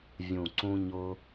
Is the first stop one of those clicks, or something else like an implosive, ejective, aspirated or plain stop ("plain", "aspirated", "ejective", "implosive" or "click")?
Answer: click